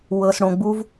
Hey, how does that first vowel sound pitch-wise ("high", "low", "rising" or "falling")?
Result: low